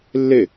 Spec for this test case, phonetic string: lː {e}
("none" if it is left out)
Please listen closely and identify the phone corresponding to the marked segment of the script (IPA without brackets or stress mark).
e